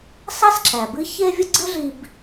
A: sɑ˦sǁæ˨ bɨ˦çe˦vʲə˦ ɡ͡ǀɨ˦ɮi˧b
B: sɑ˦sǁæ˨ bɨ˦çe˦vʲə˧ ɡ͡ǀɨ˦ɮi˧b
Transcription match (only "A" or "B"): A